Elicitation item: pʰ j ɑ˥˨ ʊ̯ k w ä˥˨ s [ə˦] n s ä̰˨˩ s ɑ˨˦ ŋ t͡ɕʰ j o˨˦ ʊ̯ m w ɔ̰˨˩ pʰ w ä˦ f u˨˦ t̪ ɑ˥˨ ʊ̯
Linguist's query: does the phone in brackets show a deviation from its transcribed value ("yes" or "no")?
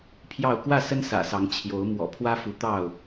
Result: no